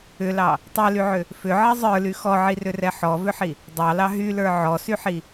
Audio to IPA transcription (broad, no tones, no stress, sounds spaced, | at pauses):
ʏ l ɑ | tˤ ɛ l y ʕ ʏ | f ʏ ʕ ɛ zˤ ə˞ l y x ɔ ʕ i r ʏ r ɛ ħ ɔ v ʏ ħ i | dˤ ɑ l ɑ ɦ y l ə˞ ʕ ɔ s y ħ i